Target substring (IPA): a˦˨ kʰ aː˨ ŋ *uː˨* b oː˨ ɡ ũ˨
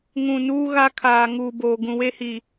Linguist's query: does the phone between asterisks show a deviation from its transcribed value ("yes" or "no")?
no